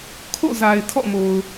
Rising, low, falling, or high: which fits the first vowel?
falling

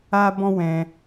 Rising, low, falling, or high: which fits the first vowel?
high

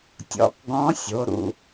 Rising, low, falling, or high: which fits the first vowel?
rising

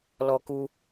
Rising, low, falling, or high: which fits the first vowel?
high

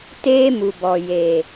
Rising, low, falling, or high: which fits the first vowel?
high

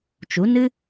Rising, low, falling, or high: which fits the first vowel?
rising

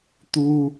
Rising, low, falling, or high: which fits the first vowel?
low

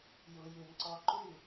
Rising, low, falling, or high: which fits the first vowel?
low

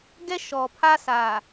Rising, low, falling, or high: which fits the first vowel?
high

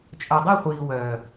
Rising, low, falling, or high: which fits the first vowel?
low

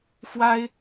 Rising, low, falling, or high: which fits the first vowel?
high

